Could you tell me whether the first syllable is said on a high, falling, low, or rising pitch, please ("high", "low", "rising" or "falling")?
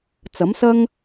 rising